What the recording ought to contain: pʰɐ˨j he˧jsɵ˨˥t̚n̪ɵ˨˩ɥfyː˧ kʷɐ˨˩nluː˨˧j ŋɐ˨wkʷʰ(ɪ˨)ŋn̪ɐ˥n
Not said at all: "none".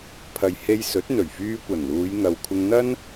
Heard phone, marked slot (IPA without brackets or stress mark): ɪ˧